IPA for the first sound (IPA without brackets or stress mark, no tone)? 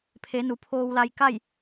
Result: pʰ